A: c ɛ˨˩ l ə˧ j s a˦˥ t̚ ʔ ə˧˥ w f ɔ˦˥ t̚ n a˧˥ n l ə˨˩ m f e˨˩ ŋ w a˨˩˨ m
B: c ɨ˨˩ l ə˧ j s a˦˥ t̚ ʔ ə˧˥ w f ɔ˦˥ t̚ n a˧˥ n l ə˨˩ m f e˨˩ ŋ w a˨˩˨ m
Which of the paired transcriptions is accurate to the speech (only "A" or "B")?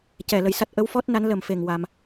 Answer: A